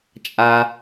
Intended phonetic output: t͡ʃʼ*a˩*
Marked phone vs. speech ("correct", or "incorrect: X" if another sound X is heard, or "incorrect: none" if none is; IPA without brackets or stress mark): correct